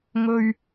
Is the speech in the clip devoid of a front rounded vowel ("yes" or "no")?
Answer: yes